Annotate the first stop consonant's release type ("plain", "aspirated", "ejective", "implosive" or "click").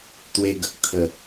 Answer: plain